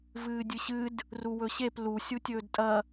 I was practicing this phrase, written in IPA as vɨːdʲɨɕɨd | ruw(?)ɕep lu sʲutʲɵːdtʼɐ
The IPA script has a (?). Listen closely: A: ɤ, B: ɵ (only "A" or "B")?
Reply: B